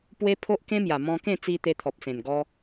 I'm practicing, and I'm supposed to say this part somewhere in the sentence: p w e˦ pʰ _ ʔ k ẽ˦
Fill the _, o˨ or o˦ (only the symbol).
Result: o˦